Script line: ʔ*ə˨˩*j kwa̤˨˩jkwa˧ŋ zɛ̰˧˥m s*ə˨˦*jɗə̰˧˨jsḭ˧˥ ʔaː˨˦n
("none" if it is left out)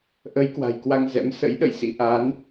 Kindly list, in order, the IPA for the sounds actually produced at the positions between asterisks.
ə˨˦, ə̰˧˥

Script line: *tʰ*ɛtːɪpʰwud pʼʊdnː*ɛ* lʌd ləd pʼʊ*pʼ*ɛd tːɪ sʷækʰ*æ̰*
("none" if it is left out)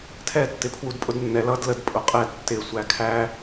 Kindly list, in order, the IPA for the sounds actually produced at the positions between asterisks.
tʰ, ɛ, qʼ, æ

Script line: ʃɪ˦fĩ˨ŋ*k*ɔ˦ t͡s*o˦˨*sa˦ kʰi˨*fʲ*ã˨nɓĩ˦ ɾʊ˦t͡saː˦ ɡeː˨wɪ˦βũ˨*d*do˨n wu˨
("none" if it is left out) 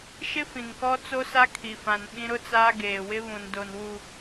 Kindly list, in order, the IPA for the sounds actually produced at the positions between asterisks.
k, o˦, f, n

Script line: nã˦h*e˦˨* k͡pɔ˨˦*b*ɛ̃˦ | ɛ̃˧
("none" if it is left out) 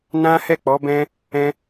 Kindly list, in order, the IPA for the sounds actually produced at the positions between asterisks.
ɛ˦˨, b

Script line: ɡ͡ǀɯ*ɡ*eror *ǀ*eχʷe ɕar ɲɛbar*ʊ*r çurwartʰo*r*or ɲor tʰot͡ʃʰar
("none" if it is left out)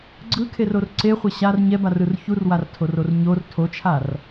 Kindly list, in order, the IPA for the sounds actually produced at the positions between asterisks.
kʰ, ǀ, ɯ, r

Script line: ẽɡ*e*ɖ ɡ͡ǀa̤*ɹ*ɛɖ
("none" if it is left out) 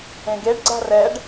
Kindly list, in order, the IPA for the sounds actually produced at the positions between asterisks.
e, r

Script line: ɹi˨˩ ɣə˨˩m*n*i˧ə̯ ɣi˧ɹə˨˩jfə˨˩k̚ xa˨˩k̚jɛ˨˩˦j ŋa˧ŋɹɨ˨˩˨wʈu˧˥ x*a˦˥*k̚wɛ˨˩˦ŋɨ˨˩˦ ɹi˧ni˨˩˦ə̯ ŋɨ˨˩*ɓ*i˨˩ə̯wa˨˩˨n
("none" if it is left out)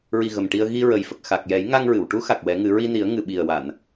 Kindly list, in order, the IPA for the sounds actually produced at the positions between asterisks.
ʈ, a˨˩, ɓ

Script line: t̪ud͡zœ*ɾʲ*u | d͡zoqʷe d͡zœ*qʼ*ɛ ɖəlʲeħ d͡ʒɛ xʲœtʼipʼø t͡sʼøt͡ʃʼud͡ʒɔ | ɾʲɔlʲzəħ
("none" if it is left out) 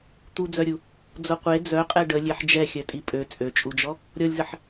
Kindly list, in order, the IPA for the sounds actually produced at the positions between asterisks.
ɾʲ, qʼ

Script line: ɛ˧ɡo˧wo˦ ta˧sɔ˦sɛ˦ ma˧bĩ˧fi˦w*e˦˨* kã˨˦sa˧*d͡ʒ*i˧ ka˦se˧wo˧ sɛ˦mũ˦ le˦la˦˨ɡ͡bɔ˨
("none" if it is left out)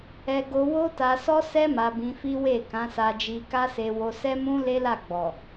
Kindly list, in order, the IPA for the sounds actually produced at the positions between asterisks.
e˦˨, d͡ʒ

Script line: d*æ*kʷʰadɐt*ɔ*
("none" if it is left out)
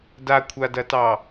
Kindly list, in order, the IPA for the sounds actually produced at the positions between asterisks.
a, ɑ

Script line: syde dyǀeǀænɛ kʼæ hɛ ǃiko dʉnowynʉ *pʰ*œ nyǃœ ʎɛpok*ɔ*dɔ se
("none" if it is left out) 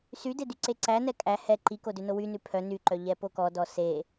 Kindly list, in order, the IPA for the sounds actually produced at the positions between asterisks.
pʰ, ɔ

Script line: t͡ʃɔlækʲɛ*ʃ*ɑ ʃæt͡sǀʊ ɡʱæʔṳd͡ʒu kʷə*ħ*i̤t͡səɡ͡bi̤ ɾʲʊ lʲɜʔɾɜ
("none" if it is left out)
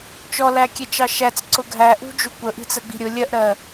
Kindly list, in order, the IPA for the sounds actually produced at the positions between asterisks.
t͡ʃ, ʔ

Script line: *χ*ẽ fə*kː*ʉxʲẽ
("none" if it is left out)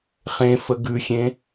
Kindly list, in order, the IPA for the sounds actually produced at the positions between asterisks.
χ, ɡ

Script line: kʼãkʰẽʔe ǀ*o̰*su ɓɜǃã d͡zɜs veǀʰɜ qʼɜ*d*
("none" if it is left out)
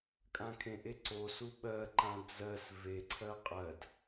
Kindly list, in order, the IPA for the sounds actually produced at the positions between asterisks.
o, d

